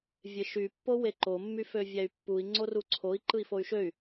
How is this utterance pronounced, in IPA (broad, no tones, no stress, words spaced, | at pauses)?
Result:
vʲeʃy pːoweǃo mːyføvʲæy̯pːui̯ ŋ͡ǀoruǀʰoi̯ ǃɯi̯foy̯ʃøy̯